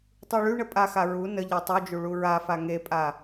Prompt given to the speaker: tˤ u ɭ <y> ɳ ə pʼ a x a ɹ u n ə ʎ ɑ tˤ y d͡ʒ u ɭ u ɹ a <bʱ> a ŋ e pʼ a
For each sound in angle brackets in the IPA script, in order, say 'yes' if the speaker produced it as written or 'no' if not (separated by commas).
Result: yes, no